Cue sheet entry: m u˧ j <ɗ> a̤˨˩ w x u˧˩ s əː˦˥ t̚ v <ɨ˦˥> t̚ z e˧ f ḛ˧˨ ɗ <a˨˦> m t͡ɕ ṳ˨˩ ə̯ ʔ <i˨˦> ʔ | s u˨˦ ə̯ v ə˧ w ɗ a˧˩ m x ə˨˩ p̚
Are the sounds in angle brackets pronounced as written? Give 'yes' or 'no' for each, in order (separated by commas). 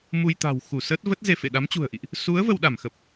no, no, yes, no